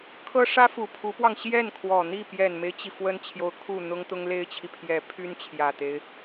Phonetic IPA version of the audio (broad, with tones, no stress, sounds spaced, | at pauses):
kʰ ɤ˥ ʂ ä˥ f u˨˩ pʰ u˧˥ p w ɑ˧ ŋ ɕ j ɛ˥˩ n kʰ w ɔ˨˩ n̪ i˥˩ p j ɛ˨˩ n m e˦ ɪ̯ t͡ɕ i˩ f w ə˥ n t͡ɕʰ j o˧˥ ʊ̯ kʰ u˥˩ n̪ ʊ˥ ŋ t̪ ʊ˥ ŋ l e˥ ɪ̯ t͡ɕʰ i˨ pʰ j ɛ˧˥ pʰ y˥ n t͡ɕʰ j ä˨˩ t̪ e˦ ɪ̯